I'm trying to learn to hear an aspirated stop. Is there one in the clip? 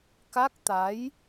no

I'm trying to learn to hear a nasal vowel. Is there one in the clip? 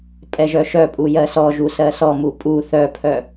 no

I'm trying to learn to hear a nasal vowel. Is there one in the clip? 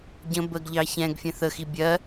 yes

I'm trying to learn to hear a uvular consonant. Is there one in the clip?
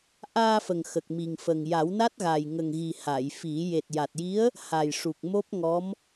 no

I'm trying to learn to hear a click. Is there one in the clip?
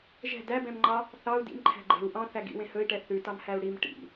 yes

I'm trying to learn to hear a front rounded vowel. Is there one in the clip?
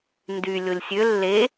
yes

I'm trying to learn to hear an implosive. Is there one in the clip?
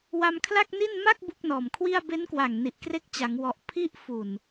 no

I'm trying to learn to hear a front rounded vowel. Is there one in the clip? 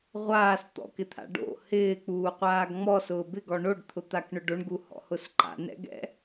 no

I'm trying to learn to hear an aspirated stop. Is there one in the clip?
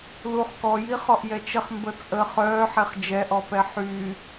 no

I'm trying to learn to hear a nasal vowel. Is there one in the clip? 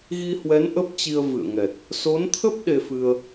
no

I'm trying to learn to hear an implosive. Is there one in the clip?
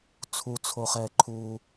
no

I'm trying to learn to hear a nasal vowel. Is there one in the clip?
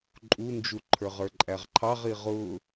no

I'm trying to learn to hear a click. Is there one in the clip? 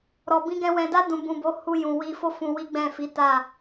no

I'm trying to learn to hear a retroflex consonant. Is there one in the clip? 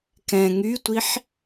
no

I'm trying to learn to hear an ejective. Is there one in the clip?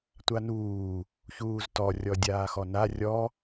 no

